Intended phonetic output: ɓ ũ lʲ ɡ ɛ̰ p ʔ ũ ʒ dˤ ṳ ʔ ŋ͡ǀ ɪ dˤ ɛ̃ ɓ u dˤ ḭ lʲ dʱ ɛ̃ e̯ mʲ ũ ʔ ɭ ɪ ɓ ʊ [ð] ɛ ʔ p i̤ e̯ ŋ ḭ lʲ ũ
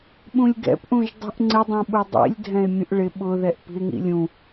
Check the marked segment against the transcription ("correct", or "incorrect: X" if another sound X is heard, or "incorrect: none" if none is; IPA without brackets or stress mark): correct